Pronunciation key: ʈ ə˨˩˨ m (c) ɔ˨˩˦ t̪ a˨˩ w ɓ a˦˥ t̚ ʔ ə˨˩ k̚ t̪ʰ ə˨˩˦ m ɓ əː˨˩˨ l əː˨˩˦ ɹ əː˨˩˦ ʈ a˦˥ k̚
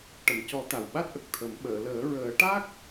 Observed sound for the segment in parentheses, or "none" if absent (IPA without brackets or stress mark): c